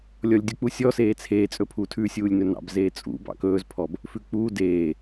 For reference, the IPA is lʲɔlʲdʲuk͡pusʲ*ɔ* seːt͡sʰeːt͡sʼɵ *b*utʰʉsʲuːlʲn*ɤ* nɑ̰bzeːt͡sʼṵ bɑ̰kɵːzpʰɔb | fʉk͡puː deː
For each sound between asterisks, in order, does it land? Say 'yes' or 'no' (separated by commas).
yes, no, no